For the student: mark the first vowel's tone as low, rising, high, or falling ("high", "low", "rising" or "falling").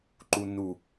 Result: low